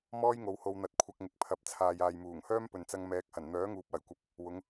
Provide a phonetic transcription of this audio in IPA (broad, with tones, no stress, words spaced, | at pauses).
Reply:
mɔː˥jŋo˨˧who˧w n̪ɐ˧t̚ kʷʰɐ˧k̚ŋɪ˨k̚pʰɐ˨˥p̚ t͡sʰaː˨jaː˨jmuː˨˩ŋhœː˥m pɵ˨nt͡sɐ˧ŋ mɛː˨˥k̚hɐ˨˩n n̪œː˨˥ŋuː˨p̚wɐ˨˩jkʷɐ˨p̚ | wʊ˨˧ŋ